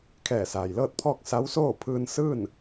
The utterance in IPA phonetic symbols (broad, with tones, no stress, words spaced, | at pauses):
kʰɛː˧˩saː˩jlɤː˥˨t̚pʰɔː˥˨k̚ sa˧˥wsoː˥˨ pʰɯː˧n sɯː˥˨n